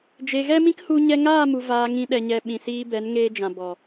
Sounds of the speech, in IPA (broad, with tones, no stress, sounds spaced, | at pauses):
d͡ʒ e˨ ɣ ɛ˦ m ĩ˦ k h u˧ ɲ ɛ˧ ŋ aː˦˨ m u˨ v aː˧ ŋ ĩ˧ ɗ ɛ˨ ɲ ɛ˨ ɓ ĩ˨ s iː˧ b ɛ˨˦ n ŋ eː˧ d͡ʒ ã˨ b ɔ˨